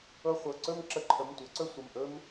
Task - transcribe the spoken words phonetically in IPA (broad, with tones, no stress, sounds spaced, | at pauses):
ɤ˧˥˧ χʷ ɤ˩˧˩ ǀ ɵ˥˧ m ǁ ə˧˥˧ ǃʰ ə˩˧˩ m tʷ ɤ˩˥ ǀ ɵ˥˧ sʷ ə˩˧˩ m ʔ ɵ˥ m